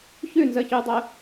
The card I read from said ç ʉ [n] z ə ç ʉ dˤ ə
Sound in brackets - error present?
no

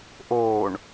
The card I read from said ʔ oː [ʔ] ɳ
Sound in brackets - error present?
yes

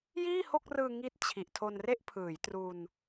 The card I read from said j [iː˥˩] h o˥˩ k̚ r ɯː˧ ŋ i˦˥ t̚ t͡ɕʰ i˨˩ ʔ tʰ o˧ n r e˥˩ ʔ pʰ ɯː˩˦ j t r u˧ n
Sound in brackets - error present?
no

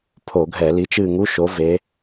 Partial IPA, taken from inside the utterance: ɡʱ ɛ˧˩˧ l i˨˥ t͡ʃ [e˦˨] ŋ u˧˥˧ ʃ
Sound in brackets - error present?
yes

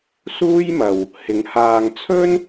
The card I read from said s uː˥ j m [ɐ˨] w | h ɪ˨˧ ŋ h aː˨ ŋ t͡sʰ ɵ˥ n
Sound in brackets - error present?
no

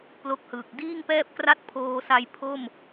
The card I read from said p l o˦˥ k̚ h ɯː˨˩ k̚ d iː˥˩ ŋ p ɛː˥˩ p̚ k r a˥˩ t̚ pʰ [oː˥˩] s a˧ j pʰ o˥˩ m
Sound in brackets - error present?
yes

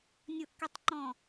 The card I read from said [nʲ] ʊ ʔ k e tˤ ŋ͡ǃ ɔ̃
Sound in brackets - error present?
no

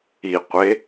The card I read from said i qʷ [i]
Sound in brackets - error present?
yes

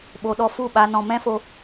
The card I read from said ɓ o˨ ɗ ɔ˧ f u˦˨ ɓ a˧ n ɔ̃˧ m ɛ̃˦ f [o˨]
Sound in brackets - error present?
yes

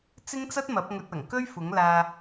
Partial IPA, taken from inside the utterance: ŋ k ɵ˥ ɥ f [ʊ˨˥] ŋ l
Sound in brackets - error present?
no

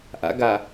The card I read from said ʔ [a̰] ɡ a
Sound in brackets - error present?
no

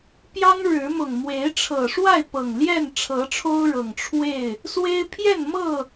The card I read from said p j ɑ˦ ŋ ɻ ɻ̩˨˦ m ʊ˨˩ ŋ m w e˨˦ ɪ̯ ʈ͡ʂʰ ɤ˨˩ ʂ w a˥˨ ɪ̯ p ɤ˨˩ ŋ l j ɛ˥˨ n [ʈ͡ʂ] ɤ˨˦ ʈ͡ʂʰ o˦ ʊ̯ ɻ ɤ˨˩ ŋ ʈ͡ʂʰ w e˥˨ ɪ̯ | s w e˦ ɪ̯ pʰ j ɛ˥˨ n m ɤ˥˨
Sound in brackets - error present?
yes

